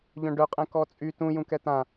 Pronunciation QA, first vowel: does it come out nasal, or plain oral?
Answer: nasal